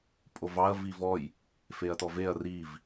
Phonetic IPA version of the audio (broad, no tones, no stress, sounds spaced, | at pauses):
pʼ o v ɑ ɐ̯ v i v ɔ j | f e ɐ̯ t ɔ v e ɐ̯ r i v